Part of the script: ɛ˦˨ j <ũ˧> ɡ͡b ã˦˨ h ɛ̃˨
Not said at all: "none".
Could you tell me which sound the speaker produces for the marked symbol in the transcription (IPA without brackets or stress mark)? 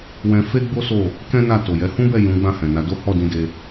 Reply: ũ˨˦